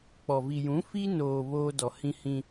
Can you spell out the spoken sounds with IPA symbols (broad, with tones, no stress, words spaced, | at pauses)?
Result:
k͡pɔ˨ vi˨jũ˨˦fi˦noː˨ βoː˦ dɔ˨hĩ˦hĩ˦